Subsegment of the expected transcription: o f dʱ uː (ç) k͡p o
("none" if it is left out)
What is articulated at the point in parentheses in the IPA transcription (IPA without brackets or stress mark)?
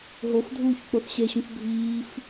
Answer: ç